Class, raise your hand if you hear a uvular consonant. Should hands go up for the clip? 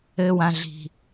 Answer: no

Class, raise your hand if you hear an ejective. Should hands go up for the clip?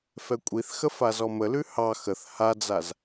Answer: yes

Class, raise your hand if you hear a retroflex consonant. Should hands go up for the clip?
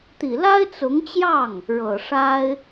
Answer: yes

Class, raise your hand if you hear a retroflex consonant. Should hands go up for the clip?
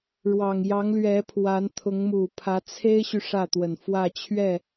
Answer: yes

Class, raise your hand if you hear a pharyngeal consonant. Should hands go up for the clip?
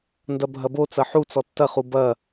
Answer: yes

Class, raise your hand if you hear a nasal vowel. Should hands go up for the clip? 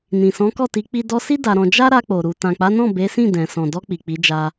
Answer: yes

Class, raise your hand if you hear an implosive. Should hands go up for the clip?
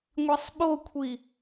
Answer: yes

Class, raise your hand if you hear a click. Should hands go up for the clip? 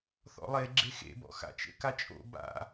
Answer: yes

